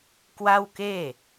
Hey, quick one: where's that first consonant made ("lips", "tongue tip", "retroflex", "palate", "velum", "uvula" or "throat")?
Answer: velum